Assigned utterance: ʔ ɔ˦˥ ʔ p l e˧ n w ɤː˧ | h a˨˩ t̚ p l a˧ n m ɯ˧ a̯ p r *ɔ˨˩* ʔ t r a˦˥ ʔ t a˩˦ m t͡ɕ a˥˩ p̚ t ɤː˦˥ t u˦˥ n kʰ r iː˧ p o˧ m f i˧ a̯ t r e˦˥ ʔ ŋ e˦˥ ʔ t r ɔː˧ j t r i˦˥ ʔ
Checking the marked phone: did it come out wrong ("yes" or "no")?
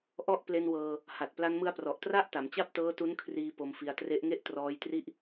no